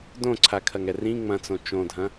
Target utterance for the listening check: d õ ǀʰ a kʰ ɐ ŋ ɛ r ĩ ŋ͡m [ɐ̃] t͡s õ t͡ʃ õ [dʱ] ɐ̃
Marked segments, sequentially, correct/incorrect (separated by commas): correct, correct